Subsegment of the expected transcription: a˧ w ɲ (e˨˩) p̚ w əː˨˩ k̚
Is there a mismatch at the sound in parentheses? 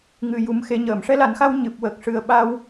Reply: yes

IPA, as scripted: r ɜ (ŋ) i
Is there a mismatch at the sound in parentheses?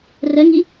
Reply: no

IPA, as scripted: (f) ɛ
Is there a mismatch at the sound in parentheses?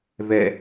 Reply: yes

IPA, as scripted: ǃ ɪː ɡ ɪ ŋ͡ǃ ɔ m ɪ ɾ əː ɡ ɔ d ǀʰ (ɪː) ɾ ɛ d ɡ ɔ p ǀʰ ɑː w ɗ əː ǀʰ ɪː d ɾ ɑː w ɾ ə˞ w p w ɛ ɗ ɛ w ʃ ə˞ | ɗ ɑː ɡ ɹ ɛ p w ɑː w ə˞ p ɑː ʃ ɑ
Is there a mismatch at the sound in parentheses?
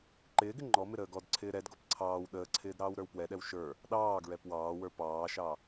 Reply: no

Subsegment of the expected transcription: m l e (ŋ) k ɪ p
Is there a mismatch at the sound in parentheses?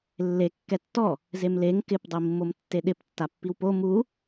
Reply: no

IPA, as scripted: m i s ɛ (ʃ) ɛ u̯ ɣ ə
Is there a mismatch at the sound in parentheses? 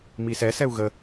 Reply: yes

